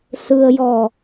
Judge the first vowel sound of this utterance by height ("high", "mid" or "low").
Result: high